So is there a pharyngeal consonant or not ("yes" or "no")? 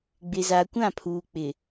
no